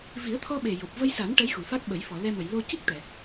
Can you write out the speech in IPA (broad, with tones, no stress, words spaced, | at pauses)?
vi˨˩˦ə̯t̪ʰɔ˧ ɓe˨˩jo˨˩p̚ və˧jsa˨˩˦n ʈə˧˥jxu˨˩˨fa˦˥k̚ɓə˨˩˦j fɔ˨˩˨lɛ˧mə˨˩˨j lo˧ci˦˥k̚ t̪ɛ˨˩˨